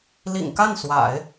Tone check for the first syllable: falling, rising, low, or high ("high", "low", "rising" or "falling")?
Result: low